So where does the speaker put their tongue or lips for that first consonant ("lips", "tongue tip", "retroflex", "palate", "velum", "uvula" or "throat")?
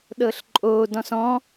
tongue tip